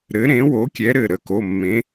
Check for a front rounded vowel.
absent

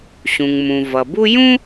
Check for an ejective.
absent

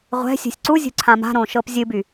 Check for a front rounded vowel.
present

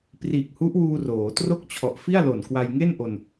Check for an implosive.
absent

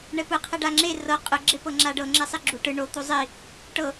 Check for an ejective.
present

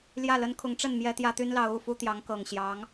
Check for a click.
absent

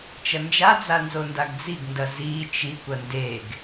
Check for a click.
absent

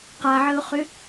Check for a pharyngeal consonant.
present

